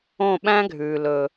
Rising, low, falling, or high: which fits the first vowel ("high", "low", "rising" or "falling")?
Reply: falling